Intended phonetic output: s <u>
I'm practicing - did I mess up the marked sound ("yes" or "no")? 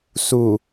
no